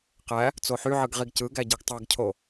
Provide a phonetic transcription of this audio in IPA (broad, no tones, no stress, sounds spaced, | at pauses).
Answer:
q æ | t͡s o ħ y ʕ ɯ ɡ ʁ i ɡ c ɯ ɡ æ ɟ i ɡ tˤ ɑ ɡ cʰ o